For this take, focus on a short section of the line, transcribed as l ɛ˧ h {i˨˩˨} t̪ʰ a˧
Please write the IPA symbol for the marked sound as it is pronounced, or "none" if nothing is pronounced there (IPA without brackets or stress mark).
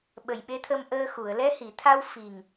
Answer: i˨˩˨